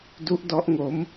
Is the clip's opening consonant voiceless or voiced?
voiced